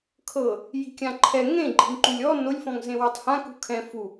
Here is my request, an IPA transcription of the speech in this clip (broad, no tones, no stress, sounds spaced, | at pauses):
kʰ ɤ | j i̤ kʲ ã ǃʰ ɛ ŋ ẽ ɡ͡ǃ i̤ ŋ ǃ u lʲ ɔ n o lʲ f ɔ̃ ŋ z ẽ w i tˤ h ã k ṳ kʰ ɛ̃ f u